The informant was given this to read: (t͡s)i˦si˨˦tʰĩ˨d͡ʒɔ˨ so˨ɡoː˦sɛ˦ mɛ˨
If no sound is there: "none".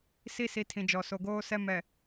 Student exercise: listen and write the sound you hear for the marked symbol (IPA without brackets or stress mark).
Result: s